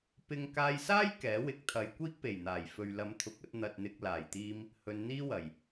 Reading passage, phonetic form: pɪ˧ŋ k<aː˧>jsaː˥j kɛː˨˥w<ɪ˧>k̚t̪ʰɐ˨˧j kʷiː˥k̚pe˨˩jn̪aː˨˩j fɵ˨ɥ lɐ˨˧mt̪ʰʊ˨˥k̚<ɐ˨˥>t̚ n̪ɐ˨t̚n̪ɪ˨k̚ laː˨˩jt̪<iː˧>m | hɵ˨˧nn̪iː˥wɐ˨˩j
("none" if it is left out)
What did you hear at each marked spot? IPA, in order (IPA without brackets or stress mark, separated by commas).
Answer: aː˧, ɪ˨˥, ɐ˧, iː˧